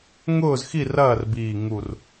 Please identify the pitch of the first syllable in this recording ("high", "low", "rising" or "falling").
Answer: falling